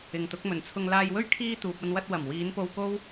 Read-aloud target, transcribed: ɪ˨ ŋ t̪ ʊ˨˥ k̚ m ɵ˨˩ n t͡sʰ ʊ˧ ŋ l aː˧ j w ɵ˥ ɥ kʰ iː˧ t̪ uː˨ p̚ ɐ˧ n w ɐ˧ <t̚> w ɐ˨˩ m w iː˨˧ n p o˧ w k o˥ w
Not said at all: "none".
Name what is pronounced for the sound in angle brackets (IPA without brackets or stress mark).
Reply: t̚